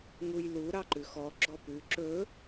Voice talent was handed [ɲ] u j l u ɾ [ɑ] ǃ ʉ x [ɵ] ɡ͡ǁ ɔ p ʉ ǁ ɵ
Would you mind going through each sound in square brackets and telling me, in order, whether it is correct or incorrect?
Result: incorrect, correct, incorrect

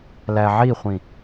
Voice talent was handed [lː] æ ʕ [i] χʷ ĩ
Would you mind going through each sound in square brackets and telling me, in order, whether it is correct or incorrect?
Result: incorrect, correct

